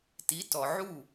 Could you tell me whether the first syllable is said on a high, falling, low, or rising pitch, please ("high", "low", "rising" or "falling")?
rising